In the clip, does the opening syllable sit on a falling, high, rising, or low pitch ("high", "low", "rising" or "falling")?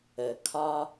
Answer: low